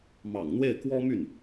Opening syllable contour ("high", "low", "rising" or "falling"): low